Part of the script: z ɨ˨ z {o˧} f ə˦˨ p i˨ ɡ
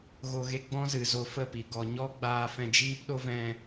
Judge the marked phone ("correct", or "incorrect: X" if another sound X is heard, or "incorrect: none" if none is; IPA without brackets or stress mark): correct